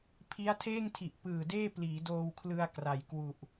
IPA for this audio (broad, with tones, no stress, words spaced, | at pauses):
pʰi˦˥a̯tʰeː˥˩ŋtʰi˨˩ʔ pɯː˨˩deː˥˩ pliː˩˦doː˧wkʰlɯ˧a̯ kra˨˩jkwu˨˩ʔ